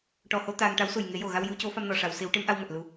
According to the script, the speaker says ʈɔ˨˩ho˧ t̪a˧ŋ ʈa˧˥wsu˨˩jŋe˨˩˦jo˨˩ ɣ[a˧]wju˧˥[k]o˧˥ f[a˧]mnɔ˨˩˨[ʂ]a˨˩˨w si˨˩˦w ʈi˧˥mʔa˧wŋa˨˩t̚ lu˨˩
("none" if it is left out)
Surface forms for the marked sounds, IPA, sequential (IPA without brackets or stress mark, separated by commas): a˧, c, a˧, ʂ